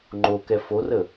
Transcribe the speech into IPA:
ŋ͡ǃ o k ɛ f o r ə

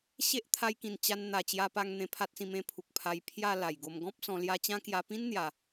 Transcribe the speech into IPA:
ɕ e˦ ʔ t̪ʰ a˧ j k ĩ˨˩ n t͡ɕ a˧ n n̪ a˨˩ t͡ɕ j a˧ p a˧ ŋ n̪ ẽ˧ pʰ a˦ t̚ s ĩ˧ m ẽ˧ pʰ u˨ k̚ pʰ a˧ j pʰ j a˥˧ l a˨˩ j ɡ o˧ m ɡ ɔ̃˦ p̚ s ɔ̃˧ l j a˦ t͡ɕ ã˦ k j a˧ p ĩ˦ n n̪ j a˨˩

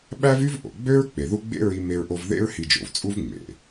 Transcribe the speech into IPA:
ɓ æ˥ v y˥ v ʔ o̰˩ ɡ͡b ø˥ ɹ k͡p e˩ ð u˧ ɡ͡b ḛ˥ ɹ i˧ m e˧ ɹ ʔ o˧ v ð ḛ˥ ɹ h i˧ d͡ʒ o̰˩ v t͡sʼ u˥ v ŋ͡m ḛ˩

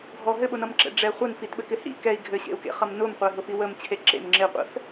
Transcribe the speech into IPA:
ɡʱ ɔ ɦ ɘ ɓ ʊ n ʌ m ǁ ɛ̰ ɖ͡ʐ ɛ χʷ ɛ n f i t ɓ ɘ k ɪ h ḭ k ɛ i̯ ɡʱ ɘ ɕ ḛ u̯ k ḛ χ ʌ m n ʊ m qʷ ɛ ɦ ʊ f i w ə m t͡ɕʰ e ǁ ḛ m ŋ͡ǁ ɪ qʷ ɛ̰ f

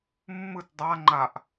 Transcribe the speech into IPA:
mː ɯ t dˤ a ŋ͡ǃ a ʔ

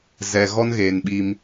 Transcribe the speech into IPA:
z ɛ˨ ɣ ɔ˦ n ɣ eː˨ n ɓ i˦ m

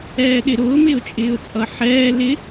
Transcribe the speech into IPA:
ɛː ɗ ɪ ɾ ʊː m ɪː ʊ̯ t͡ʃʼ ɪː ʊ̯ t͡sʼ ʌ ħ ɛː l ɪ

